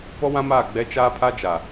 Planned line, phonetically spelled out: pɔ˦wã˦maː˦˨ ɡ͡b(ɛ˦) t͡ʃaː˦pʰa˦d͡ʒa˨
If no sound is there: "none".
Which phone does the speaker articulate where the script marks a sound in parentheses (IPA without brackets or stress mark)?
ɛ˦